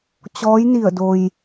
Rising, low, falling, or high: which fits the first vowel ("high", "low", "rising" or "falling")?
rising